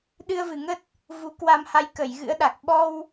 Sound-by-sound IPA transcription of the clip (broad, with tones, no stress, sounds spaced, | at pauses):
ɗ ɨ˧ ə̯ v ɨ˨˩ ŋ ə˦˥ t̚ | v u˨˦ k w a˧ m h a˧ j k ə˧˩ j ɣ ɨ̰˧˥ ə̯ ɗ a˨˩ k̚ ɓ ɔ˧ w